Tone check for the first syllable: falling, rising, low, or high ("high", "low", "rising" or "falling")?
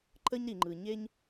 high